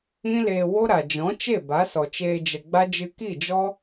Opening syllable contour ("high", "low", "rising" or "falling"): high